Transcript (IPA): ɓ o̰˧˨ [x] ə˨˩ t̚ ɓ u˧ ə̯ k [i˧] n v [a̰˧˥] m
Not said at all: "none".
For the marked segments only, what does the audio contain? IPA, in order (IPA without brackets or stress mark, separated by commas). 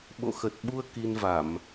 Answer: x, i˧, a˧˩˨